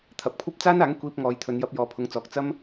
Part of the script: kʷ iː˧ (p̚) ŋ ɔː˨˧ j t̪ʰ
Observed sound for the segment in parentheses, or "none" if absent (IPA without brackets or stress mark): p̚